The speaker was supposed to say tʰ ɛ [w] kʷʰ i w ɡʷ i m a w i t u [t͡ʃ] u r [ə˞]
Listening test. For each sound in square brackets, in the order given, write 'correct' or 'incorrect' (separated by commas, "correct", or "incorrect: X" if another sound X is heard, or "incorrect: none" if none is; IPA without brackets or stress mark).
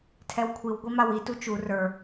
correct, correct, correct